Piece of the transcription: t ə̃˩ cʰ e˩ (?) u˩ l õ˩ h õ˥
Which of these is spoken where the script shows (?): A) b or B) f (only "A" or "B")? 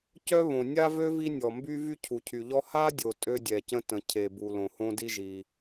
A